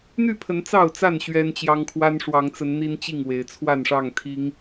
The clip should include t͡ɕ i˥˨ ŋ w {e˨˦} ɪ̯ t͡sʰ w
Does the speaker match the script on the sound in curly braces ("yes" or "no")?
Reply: yes